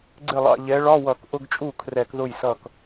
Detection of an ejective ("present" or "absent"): present